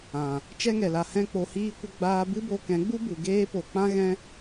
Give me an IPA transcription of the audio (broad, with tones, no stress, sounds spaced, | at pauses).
ã˨ | t͡ʃ ɛ˦ ŋ ɛ˨ l a˨ h ɛ̃˦ k͡p o˧ h iː˦ kʷ ə˦ ɡ͡b aː˧ b ɨ˦ b o˧ k ɛ̃˨˦ ɡ͡b u˦ b u˨ ɡ eː˦ p o˨ k͡p ã˦ ɣ ɛ̃˦